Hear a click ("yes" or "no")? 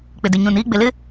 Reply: no